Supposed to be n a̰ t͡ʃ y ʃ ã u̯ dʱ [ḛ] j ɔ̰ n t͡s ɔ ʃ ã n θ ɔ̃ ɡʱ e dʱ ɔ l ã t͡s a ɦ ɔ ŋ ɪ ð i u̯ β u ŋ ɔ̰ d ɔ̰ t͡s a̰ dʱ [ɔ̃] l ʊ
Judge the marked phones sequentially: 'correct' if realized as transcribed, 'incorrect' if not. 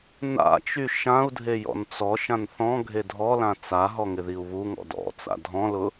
incorrect: e, correct

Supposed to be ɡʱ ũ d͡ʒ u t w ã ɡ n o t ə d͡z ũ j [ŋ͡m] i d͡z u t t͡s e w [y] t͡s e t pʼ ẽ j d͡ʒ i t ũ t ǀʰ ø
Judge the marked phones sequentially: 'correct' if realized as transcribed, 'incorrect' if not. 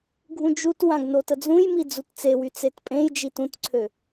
incorrect: m, correct

